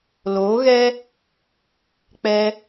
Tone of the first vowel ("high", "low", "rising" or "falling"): rising